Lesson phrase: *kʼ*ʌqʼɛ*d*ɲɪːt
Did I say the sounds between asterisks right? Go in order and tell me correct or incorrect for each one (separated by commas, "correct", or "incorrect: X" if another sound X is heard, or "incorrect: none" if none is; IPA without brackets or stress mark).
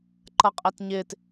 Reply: incorrect: ǃ, incorrect: t